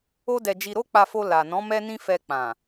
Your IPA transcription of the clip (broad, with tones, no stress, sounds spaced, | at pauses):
o˦ d ɛ˧ d͡ʒ i˧ ɾ o˦ k͡p a˧ f o˧ l a˨ n ɔ̃˨˦ m ɛ˦ n ĩ˦ f ɛ˧ k͡p ã˨